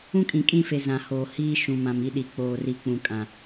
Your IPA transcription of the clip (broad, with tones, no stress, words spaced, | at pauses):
ũ˦kʼĩ˨kʼĩ˦˨fe˨ zã˨hoː˨ hiː˦ ʃũ˨mã˨m i˦ɗi˨ k͡poː˨ri˨ k͡pũ˨kʼã˨